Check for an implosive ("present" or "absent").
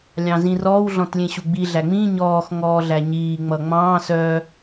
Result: absent